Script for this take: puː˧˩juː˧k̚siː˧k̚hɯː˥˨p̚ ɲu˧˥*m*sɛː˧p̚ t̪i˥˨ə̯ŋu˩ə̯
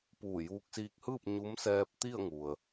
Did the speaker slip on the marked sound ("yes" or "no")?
no